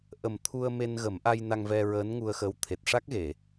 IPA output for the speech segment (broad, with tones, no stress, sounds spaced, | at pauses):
ʔ ə˨˩ m t̪ʰ u˧ ə̯ m e˧ n ɣ ə˨˩˦ m ʔ a˧ j n a˧ ŋ v ɛ˧ ɹ əː˧˥ n ŋ u˧ ə̯ x əː˧˥ w t̪ʰ e˨˩ t̚ ʂ a˦˥ k̚ ɣ e˨˩˨